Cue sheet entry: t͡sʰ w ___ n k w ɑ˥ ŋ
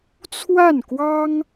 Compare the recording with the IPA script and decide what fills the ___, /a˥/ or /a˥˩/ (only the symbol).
a˥˩